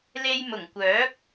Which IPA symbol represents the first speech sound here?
l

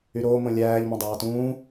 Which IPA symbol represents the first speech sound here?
y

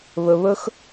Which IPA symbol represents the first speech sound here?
β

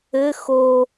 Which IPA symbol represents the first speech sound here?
ɘ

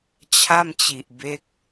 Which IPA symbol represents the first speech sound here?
t͡ɕʰ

